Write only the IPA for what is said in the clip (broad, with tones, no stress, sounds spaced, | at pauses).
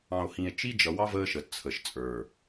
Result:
ɑ̃˨ o̯ h ĩ˨ e̯ t͡ʃ i˦ d͡ʒ ʌ˨ w ɑ˦ v əː˦ ʃ ə˨ t t͡sʰ ə˨ ʃ t͡sʼ ə˞˨